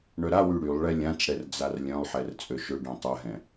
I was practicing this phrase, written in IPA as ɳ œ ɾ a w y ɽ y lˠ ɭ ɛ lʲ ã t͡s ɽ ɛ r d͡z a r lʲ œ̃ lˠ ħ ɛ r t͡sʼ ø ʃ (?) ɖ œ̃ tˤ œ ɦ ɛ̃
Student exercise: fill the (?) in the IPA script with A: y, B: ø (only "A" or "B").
B